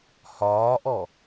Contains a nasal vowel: no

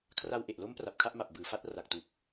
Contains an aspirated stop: yes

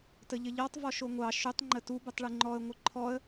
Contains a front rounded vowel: yes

